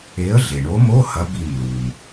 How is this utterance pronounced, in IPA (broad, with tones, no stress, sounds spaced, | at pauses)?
e˨˥ ə̯ ɮ e˩ ɳ o˨˥ m o˧˥˧ h ɐ˨˥ b i˧˩ m l u˩ m